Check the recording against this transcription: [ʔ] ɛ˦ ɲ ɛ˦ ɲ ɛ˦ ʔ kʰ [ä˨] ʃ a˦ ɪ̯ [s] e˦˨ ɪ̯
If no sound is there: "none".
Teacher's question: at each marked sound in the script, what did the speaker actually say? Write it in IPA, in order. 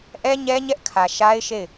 ʔ, ä˨, ʃ

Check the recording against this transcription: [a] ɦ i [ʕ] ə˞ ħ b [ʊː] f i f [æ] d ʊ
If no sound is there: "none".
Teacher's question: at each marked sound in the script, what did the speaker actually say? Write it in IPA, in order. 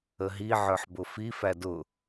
ə, ʕ, ʊ, æ

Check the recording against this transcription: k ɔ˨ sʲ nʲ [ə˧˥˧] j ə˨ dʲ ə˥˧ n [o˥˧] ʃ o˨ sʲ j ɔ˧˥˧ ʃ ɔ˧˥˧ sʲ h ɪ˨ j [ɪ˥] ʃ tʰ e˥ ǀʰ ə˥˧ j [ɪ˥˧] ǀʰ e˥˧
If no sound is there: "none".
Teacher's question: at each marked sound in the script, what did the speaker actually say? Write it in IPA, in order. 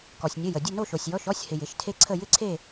ə˧˥˧, o˥˧, ɪ˩˥, ɪ˥˧

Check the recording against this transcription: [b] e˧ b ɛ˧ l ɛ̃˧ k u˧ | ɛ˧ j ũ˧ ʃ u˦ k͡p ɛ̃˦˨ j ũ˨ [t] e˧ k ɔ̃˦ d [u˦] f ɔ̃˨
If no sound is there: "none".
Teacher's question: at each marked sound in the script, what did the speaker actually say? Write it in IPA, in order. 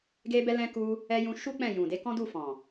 ɡ, d, u˦˨

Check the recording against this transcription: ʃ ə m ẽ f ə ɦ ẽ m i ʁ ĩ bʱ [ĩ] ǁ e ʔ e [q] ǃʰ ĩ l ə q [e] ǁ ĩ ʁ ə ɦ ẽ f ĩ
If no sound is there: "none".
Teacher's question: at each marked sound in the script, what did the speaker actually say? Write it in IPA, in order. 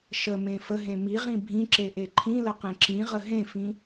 ĩ, none, ẽ

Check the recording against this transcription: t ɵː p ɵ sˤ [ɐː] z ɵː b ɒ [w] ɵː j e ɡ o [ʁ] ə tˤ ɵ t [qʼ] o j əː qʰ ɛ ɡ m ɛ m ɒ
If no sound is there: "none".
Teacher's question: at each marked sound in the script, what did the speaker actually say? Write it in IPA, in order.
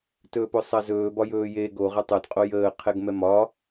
ɐ, j, ʁ, qʼ

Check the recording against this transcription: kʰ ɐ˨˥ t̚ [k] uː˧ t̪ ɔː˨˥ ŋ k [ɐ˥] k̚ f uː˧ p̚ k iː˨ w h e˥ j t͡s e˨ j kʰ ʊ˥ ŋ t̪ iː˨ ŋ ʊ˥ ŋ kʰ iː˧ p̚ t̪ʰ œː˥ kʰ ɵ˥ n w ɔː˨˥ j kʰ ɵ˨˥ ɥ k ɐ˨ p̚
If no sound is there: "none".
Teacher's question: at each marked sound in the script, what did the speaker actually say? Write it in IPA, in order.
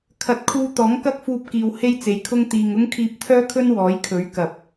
kʰ, ɐ˥

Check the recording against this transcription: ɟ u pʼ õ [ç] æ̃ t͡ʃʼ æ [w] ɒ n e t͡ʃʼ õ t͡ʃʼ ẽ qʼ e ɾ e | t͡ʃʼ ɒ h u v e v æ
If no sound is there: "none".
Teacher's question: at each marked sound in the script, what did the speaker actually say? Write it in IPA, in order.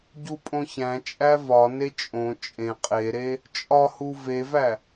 ç, v

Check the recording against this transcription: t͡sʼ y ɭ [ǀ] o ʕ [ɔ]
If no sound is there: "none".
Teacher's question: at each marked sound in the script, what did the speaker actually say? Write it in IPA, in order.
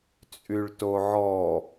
t, ɔ

